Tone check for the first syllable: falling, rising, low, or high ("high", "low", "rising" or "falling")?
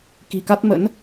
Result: low